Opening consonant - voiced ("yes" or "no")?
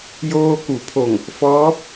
yes